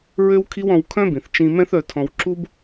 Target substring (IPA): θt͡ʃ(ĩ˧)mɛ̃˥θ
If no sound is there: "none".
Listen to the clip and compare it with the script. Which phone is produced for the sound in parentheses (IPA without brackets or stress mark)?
ĩ˧